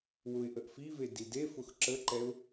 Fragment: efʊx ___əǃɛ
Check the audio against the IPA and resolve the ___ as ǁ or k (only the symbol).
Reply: ǁ